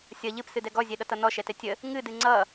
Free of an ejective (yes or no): yes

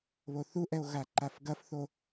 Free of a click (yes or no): no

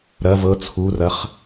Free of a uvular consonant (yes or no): no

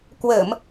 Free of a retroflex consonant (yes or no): yes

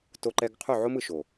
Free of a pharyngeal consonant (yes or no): no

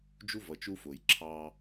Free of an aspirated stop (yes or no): no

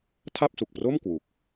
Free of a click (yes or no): yes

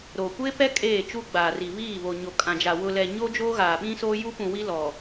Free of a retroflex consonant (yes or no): yes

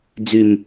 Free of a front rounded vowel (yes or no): no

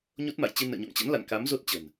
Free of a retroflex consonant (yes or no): yes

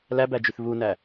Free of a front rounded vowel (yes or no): no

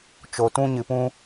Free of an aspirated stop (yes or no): yes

